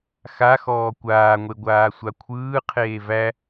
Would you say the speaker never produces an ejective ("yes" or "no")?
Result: yes